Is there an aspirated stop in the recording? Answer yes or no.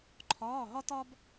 yes